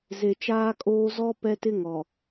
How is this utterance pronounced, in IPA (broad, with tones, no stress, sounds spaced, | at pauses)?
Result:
z e˨ t͡ʃ aː˦ kʼ oː˦ z ɔ˦ p ɛ˦ t ɪ˦ ŋ ɔ˨